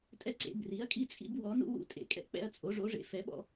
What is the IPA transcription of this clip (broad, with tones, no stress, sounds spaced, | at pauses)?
tʼ ɛ˦ ǀ ḛ˨˦ b r i˨˦ ɐ̯ kʼ i˦ t͡sʼ ḭ˦ b w ɔ˨˦ n ṵ˦ w ṵ˦ tʼ ḛ˨˦ kʼ ɛ̰˦ k͡p ɛ̰˦ ɐ̯ t͡sʼ o˨˦ ʐ o˨˦ ʐ ḛ˨˦ f ɛ˨˦ ɓ ɔ̰˦